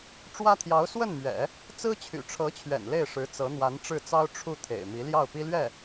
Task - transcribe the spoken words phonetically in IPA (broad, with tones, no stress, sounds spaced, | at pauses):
ʈ͡ʂ w ä˥ t̪ʰ j ɑ˧˥ ʊ̯ s w ə˥˩ n m ɥ ɛ̰˨˩˦ | t͡s ɹ̩˥ t͡ɕʰ y̰˨˩ ʈ͡ʂʰ ɤ˧˥ t͡ɕʰ ɥ ɛ̰˨˩ n l e˥˩ ɪ̯ ʂ ɻ̩˧˥ t͡s ɤ˧˥ n̪ w a˧˥ n ʈ͡ʂ ɻ̩˥˩ t͡s ɑ˥ ʊ̯ ʈ͡ʂʰ u˥˩ t̪ʰ ḛ˨˩ ɪ̯ m i˧˥ l j ɑ˥˩ ʊ̯ p i˥ l ɥ ɛ˥˩